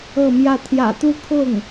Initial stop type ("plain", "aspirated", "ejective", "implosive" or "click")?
aspirated